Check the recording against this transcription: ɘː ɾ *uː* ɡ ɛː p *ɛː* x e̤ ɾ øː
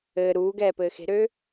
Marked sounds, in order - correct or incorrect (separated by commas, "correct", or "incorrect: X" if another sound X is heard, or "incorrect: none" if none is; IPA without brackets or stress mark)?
correct, incorrect: ɘː